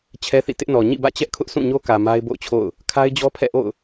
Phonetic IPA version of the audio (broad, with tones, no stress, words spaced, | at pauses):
t͡ɕʰɛ˦θḭ˦˨ tɪ˦ʔnɔ˨ ɲḭ˦˨bä̰˦˨t͡ɕɛ˦ʔ kʰʊ˦ʔ sũ˦˨ɲo˦kä˨ ma˦ɪ̯bo̰˦˨ʊ̯t͡ɕʰo̰˦˨ʊ̯ | kʰa˦ɪ̯d͡ʑɔ˦pʰɛ̰˦˨ʔo̰˦˨ʊ̯